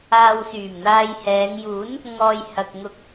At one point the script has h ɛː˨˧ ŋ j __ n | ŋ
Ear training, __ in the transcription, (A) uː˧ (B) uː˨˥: B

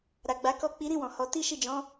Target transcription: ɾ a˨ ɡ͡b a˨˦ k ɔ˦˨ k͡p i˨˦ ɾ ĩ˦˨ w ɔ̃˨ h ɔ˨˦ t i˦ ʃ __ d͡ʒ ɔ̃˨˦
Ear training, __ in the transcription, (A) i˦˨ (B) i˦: A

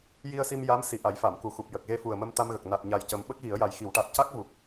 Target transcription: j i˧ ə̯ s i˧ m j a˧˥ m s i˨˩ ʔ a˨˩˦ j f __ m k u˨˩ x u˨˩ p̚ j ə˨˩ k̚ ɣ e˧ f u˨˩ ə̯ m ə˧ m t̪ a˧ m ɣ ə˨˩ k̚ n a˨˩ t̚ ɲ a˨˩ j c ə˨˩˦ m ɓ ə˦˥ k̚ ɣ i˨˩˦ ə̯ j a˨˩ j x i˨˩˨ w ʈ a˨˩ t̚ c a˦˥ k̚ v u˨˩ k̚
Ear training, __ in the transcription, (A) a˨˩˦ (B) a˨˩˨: B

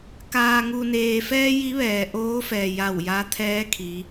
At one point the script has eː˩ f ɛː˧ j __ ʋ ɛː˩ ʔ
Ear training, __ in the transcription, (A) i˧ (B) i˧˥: B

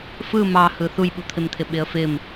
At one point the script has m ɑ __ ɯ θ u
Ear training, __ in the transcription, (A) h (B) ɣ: A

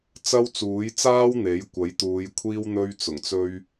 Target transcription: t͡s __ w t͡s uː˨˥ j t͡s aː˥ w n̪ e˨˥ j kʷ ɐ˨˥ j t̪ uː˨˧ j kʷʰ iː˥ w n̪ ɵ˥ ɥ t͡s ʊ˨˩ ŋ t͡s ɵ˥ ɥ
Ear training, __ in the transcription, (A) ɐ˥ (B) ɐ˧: A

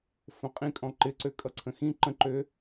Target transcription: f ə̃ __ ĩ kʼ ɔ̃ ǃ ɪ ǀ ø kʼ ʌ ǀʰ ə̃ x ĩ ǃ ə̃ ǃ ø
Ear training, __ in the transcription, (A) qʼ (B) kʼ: A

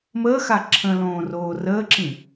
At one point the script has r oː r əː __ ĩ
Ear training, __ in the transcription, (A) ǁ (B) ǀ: A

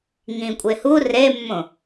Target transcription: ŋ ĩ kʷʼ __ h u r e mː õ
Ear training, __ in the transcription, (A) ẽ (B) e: B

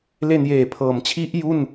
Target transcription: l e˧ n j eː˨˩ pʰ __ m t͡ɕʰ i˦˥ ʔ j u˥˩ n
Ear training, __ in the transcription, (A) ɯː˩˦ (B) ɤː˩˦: B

